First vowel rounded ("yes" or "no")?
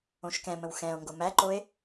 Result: yes